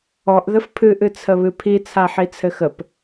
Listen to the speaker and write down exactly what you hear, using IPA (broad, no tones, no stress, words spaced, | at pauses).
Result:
ɔʔ ðəfpʰɨ ʔɨt͡sʰəβɨpʰi t͡sʰaħit͡sʰɘxəp